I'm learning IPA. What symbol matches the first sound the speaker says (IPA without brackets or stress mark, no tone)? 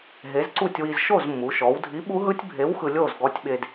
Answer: ɦ